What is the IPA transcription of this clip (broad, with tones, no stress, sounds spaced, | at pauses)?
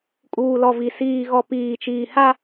kʼ uː˨ l ɔ˨ v i˨ s iː˨ ɣ ɔ˨ p iː˨ t͡ʃ iː˨ h a˦